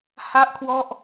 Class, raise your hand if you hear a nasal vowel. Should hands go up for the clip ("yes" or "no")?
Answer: no